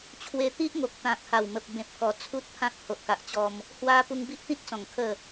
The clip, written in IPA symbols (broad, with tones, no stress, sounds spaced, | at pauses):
t͡ɕʰ w e˧ t̪ i˦ ʔ ŋ o˨ k̚ t̪ ã˨ k̚ h a˨˩ w m ə˨ p̚ b ẽ˨ p̚ k ɔ˨˩ t͡sʰ u˦ t̚ pʰ ã˦ k̚ h o˨ ʔ k a˨ ʔ t͡ɕ ɔ˧ m | h w a˧ p u˧ ŋ b i˦ ʔ t̪ ĩ˦ t̚ t͡s ɔ̃˨˩ ŋ kʰ ə˥˧